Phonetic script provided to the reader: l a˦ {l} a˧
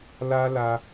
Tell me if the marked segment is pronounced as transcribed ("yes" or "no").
yes